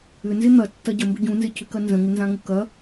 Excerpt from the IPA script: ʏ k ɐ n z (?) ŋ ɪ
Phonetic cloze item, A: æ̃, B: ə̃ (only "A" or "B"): B